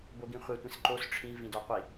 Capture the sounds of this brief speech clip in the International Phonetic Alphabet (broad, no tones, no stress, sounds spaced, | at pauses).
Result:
b o ɡ ĩ χʷ ɛ tʷ ĩ s ǃ o s ʈ͡ʂʰ ĩ v ĩ d ɔ qʷ i